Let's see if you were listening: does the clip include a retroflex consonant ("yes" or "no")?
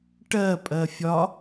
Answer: yes